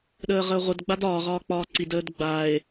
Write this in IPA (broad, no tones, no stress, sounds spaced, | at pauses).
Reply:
ɗ əː ʁ əː ʁʷ ə d ɡ͡b a d ɒː ʁ ɒː k͡p ɒː ǀ i d əː d ɡ͡b a e̯